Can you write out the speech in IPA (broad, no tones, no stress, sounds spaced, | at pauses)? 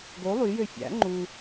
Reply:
ɡ o lˠ y j ø fʲ æ̰ ŋ͡ǃ u